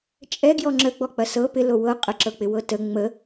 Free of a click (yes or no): no